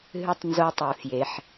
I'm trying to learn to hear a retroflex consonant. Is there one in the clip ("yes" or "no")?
no